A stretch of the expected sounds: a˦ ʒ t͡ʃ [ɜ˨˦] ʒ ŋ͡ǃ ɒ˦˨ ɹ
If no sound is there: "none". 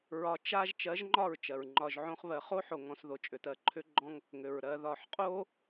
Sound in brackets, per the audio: ɜ˨˦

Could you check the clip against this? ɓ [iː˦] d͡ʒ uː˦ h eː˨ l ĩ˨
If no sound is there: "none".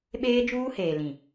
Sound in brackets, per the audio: eː˦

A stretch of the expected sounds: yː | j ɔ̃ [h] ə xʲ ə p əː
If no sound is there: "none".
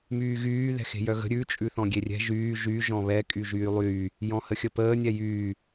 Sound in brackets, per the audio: h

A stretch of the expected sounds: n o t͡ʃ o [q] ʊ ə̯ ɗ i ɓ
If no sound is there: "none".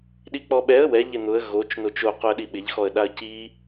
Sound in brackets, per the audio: q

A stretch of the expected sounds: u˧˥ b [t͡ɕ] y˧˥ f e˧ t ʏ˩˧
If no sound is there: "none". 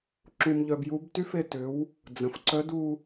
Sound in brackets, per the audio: t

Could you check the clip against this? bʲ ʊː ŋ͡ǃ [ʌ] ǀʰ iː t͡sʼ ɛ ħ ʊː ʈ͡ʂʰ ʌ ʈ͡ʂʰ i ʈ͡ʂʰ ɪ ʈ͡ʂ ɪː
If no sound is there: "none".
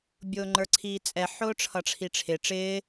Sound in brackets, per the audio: ə˞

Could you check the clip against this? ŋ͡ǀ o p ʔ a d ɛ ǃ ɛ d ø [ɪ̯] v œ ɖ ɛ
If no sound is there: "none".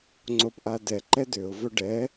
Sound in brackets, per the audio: ʊ̯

